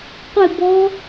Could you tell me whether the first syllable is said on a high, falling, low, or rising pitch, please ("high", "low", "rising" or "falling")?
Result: falling